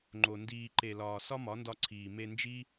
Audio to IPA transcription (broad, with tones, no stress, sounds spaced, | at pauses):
ŋ͡ǃ o˨ n d iː˨ ǃ e˨ l ɒː˨ s ɒ˦ m ɒ˨˦ n d ɒ˧ ǀʰ iː˨ m e˧ n d͡ʒ i˦